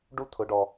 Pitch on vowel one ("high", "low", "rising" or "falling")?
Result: high